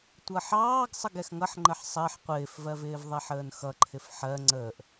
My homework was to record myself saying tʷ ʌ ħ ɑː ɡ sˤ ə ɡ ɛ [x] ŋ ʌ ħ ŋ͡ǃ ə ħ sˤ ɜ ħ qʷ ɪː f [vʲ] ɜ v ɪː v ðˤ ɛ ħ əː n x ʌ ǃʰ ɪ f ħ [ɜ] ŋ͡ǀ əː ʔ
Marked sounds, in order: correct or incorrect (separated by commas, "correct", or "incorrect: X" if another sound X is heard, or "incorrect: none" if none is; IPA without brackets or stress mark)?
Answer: correct, incorrect: v, correct